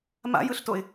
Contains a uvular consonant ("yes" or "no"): no